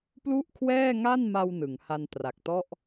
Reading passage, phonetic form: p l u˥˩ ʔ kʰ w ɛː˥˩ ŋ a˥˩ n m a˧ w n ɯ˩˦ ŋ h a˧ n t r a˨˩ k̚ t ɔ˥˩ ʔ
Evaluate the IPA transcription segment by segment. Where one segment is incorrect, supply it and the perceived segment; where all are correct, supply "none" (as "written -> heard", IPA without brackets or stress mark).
none